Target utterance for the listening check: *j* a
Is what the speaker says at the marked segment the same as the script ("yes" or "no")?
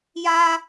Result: yes